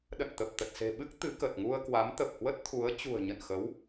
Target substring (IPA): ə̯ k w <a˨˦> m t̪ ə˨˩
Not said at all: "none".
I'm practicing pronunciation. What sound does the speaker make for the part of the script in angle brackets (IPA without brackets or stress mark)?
a˨˦